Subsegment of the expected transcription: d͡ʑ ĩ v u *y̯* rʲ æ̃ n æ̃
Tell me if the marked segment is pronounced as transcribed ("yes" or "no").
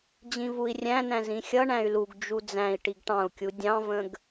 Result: no